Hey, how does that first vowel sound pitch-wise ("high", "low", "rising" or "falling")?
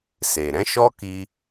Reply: low